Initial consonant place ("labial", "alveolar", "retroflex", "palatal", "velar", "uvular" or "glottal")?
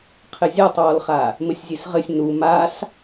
uvular